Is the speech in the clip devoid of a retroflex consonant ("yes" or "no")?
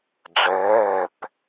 no